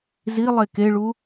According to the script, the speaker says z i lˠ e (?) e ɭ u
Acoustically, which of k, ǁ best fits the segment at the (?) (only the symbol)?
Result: k